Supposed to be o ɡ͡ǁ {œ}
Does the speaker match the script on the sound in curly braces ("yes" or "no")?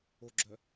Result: yes